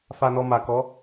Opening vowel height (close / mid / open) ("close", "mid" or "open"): open